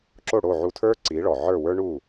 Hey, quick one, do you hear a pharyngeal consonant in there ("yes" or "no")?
yes